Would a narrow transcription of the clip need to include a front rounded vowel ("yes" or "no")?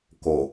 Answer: no